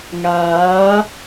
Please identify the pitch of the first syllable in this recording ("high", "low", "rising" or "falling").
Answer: rising